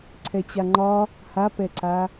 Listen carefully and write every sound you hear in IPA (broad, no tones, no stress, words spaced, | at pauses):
ǀʰɛt͡ɕaŋ͡ǃɒ | hapɛǀa